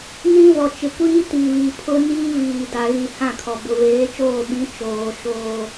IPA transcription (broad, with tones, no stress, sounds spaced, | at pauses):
n ĩ˦ v ɔ˨ t͡ʃ ɪ˨ kʷ iː˦ t i˨ v i˨ pʰ ʊ˦ n iː˦ v iː˨ d a˨ ɣ i˨ h ã˦˨ kʰ ɔ˨ b ʊ˨ v eː˨˦ t͡ʃ oː˦˨ ɓ ĩ˨˦ t͡ʃ oː˨ ʃ oː˦